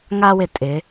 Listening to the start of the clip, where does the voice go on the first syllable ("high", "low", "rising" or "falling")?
high